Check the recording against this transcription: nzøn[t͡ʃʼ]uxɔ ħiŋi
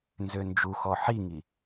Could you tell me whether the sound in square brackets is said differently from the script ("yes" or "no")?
yes